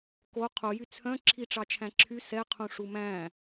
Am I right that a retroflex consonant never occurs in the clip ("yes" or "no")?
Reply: no